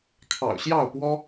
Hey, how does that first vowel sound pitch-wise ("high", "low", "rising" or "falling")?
low